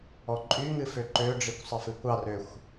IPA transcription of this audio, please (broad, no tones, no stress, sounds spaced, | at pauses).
ɔ ǃʼ y ŋ ɨ f ø ǃ ø ɖ͡ʐ i kʷ sˤ ə f ɨ kʷ ɑ r ø xʷ